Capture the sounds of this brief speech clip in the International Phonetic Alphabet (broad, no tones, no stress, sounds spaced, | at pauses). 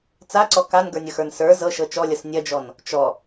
t͡s a ǀ ɔ k a n ɡ ə˞ nʲ ʌ x ə˞ n s ə˞ z ɤ ʃ ɤ t͡ʃ ɔ lʲ ʌ s nʲ ɐ d͡ʒ ɔ n | t͡ʃ ɔ